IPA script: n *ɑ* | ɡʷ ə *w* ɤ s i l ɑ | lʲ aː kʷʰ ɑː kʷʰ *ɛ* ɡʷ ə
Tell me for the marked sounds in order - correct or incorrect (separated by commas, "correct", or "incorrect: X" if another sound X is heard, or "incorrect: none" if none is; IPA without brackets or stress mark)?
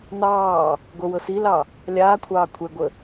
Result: incorrect: ɑː, correct, correct